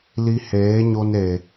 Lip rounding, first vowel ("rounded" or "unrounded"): unrounded